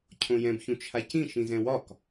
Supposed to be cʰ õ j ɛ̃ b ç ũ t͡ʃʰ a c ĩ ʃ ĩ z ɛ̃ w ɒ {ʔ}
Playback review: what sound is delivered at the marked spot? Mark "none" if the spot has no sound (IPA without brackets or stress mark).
k